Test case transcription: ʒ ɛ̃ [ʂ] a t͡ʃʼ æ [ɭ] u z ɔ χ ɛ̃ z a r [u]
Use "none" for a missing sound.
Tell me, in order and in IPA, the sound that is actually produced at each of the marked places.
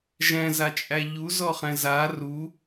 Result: z, ʎ, u

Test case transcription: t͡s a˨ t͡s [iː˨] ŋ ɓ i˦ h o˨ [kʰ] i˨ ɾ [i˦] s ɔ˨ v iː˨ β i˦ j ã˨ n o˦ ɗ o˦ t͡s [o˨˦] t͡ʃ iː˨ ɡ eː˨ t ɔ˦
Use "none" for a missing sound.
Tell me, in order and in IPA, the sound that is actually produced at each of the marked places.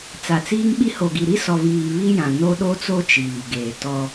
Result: iː˦, ɡ, i˦, o˦

